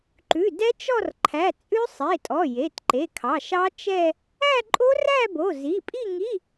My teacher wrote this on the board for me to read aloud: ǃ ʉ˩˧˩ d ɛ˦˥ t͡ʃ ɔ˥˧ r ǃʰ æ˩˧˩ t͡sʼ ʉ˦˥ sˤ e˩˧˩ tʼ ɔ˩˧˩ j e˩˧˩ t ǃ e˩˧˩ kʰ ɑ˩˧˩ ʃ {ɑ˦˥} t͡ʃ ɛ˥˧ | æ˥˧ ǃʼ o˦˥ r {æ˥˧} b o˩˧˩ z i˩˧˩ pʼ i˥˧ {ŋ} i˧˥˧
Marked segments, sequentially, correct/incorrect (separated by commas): correct, correct, correct